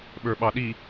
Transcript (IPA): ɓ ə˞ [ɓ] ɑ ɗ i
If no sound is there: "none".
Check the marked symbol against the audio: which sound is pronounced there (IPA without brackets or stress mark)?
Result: ɓ